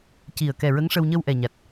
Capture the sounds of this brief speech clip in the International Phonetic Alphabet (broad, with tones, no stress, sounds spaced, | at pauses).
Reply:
c i˨˩ ə̯ k ɛ˨˩ ɹ ə˧˥ ŋ ʂ ə˧ w ɲ ə˧ w ʔ ɛ˨˩ ɲ a˨˩ t̚